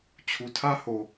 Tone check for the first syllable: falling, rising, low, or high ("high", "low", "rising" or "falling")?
low